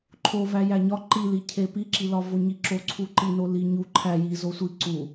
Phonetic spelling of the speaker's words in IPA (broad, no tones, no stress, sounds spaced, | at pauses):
ǃʰ o v æ j æ ɲ ɒ ǃ i l i cʰ e p i ǁ i l ɒ v o ɲ i ǁ o ǀʰ u ǃ i n o l i ɲ u ǃʰ æ j i z o sʷ i ǀ u